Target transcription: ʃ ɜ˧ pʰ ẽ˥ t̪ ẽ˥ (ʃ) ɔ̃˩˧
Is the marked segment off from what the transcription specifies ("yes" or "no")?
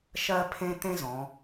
yes